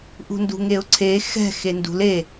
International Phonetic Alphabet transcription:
ʔ ṳ n d ṳ ŋ e ʊ̯ ǀʰ e x ɛ̤ x e n d ṳ l e

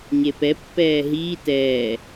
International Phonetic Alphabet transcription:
ɲ e p ɛ pː ɛː ɦ iː t ɛː

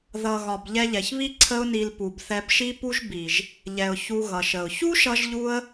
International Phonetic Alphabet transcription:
ð ʌ˨ ɣ ɒ˨ b ʎ ɛ˧ ʎ ɛ˨ ç β i˦ ǀʰ ə˦ ʊ̯ n i˧ l p u˨ b θ ɛ˧ b ʃ i˦ p u˦ ʒ b i˨ ʒ | ʎ ɛ˨ ʊ̯ ç u˧ ɣ ʌ˨ ʃ ə˨ ʊ̯ ç u˦ ʃ ʌ˧ ʒ ʎ u˧ ə̯

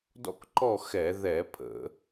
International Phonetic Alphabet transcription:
d ɔ̰˥˨ k ǃ ɔ˥˨ x ɛ˧˩˧ ð ɛ˧˩˧ pʰ ə̰˧˩˧

